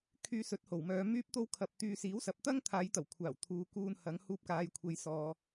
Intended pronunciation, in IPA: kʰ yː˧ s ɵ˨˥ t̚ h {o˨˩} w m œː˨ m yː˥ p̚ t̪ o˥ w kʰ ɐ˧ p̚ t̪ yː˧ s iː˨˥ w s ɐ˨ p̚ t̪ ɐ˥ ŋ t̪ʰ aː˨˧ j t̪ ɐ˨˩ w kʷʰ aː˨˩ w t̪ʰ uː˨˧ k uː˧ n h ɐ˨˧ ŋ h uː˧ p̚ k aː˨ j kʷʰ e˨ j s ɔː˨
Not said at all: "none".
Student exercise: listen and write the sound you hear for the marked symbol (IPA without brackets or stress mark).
o˨˩